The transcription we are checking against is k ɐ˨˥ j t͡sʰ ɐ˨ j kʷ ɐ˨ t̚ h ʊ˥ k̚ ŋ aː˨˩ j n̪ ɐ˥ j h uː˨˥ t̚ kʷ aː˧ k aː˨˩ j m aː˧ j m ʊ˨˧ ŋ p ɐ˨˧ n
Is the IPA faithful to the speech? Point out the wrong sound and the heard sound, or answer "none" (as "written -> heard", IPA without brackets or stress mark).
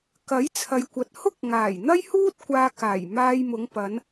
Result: uː˨˥ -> uː˥